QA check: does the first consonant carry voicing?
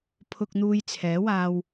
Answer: no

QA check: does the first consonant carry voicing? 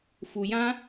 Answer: no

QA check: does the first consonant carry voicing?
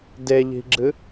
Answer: yes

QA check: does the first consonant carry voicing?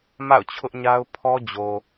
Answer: yes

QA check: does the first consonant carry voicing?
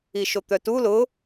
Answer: no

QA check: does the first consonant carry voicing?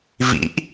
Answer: yes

